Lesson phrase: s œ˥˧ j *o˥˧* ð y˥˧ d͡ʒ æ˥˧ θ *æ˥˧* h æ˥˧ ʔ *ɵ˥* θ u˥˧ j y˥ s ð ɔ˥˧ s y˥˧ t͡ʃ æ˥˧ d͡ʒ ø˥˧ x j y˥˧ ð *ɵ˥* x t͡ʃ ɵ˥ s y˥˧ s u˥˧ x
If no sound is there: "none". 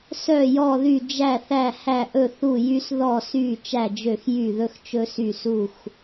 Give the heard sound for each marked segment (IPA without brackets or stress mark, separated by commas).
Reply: ɔ˥˧, æ˥˧, ɵ˥˧, ɵ˥